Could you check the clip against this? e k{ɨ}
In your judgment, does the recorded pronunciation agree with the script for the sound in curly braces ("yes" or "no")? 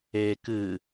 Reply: yes